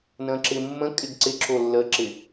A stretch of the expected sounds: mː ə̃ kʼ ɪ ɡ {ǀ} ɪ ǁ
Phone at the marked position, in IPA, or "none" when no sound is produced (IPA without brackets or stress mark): ǀ